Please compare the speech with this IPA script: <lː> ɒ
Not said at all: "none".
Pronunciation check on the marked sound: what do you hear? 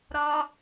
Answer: ɾ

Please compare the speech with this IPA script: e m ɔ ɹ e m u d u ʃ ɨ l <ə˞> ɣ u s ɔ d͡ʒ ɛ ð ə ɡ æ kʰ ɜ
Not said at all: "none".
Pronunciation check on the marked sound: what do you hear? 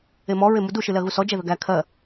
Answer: ɜ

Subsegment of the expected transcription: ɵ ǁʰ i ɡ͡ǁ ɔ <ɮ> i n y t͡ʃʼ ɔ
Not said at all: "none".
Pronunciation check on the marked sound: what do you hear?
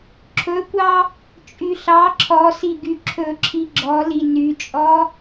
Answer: l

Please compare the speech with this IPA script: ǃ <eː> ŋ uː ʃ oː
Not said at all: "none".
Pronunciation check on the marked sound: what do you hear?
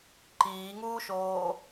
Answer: iː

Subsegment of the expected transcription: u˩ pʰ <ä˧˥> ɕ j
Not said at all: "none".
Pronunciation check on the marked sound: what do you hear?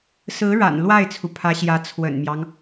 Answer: ä˧˥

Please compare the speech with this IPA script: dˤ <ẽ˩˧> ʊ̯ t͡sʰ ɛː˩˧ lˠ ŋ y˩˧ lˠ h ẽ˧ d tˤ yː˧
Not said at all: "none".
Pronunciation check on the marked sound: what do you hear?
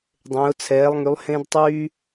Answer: ẽ˩˧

